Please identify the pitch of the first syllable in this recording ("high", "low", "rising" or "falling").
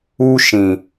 high